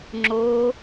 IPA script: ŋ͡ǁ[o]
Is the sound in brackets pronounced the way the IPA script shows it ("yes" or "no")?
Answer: yes